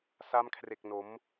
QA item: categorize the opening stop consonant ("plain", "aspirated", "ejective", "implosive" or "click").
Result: aspirated